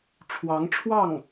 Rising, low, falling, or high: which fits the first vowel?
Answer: rising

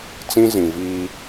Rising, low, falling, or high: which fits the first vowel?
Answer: high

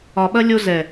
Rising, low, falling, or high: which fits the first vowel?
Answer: low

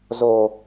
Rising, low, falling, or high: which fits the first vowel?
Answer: high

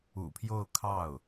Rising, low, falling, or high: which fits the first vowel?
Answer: low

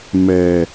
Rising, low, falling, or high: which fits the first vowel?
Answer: low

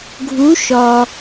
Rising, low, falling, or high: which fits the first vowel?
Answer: rising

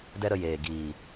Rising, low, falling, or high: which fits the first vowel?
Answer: high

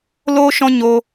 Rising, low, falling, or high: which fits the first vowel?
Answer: high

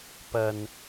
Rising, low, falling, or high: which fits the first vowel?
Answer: low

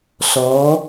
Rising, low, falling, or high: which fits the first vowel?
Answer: rising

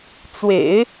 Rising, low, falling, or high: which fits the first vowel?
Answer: low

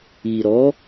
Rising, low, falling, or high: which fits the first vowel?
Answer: low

